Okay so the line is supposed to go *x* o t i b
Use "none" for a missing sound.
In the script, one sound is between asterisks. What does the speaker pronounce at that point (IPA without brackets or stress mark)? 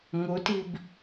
ŋ